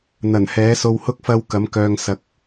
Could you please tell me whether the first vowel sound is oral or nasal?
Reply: oral